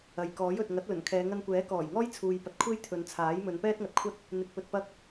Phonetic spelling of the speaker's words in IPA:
ɐ˨ j k ɔː˨˥ j ɵ˨ t̚ ŋ ɐ˨˥ t̚ l ɵ˨˩ n kʰ ɛː˨˧ ŋ ɐ˧ n kʷ ɛː˨˥ k ɔː˨˩ j ŋ ɔː˥ j t͡sʰ uː˨ j p ɐ˨ t̚ kʷʰ e˥ j t̪ʰ ɵ˨˧ n t͡sʰ aː˨˥ j m ɵ˨˧ n p ɛː˥ t̚ ŋ ɐ˨ t̚ kʷʰ ɐ˥ t̚ | n̪ ɪ˨ k̚ p ɵ˧ t̚ p ɐ˥ k̚

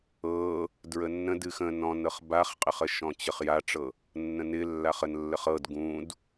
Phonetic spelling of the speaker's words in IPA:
ɤ | d ɹ ə nː ə̃ d ɨ x ə̃ n ɔ̃ n ɤ χ b a χ qʼ ɪ χ ə ʃ ɔ̃ t͡ɕ ə χ j a ʈ͡ʂ ɤ | nː ə̃ n ɪ lː a χ ə n lː ə χ ɤ d ɡ ũ d

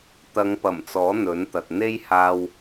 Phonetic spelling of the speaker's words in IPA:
t̪ ɐ˨˧ ŋ p ɐ˨˩ m t͡s ɔː˨˥ n̪ ɵ˨˥ n t̪ ɐ˨ t̚ n̪ e˥ j h aː˧ w

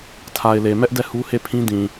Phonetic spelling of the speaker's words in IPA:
tʰ a˨ ɪ̯ l e˨ m ɛ˦ ʔ d ɛ˦˨ h u˦ h e˦˨ pʰ ĩ˦ d ĩ˨

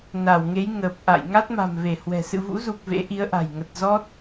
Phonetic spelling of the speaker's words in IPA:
n a˧˩ w ŋ e˨˦ j ŋ əː˨˩ p̚ ʔ a̰˧˨ j ŋ a˦˥ t̚ m a̤˨˩ m v e˧˩ h w ɛ̤˨˩ s ɨ̰˧˨ v ṵ˧˥ z u˨˩ k̚ v ḛ˧˥ ʔ i˨˦ ə̯ ʔ a̤˨˩ j ŋ ə˨˩ t̚ z ɔ˦˥ t̚

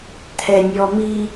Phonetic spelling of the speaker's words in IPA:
t̪ʰ ɛ nʲ ɔ m i

